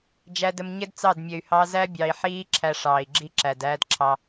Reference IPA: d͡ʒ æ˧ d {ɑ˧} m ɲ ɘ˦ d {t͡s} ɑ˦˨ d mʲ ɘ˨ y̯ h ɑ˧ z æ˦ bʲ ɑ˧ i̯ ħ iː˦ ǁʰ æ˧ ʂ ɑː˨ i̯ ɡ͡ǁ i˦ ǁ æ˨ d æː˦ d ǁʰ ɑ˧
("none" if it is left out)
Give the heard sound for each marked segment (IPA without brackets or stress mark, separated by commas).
ə˧, t͡s